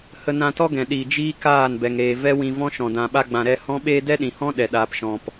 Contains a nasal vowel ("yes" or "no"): yes